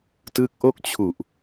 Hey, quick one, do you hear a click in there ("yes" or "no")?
no